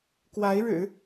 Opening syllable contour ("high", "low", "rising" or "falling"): rising